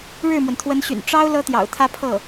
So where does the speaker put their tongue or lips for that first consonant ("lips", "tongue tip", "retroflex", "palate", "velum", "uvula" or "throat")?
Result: retroflex